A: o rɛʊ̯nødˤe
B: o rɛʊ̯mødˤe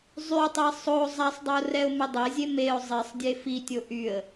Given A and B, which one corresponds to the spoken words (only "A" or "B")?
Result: B